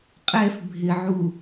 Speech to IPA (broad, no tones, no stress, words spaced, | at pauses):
qʼɛf bʱɪʕu